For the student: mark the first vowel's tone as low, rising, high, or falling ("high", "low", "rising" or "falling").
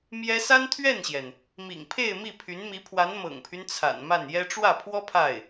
high